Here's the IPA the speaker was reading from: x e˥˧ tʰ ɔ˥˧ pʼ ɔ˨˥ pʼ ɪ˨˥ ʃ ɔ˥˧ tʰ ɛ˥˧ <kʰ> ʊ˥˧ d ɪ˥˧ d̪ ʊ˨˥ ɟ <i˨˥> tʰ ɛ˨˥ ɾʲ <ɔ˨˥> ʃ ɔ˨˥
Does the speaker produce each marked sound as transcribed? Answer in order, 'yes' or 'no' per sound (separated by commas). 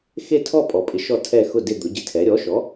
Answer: no, no, yes